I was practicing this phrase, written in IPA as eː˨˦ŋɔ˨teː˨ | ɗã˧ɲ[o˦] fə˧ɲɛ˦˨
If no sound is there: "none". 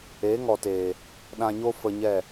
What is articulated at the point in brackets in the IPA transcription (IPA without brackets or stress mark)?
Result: o˦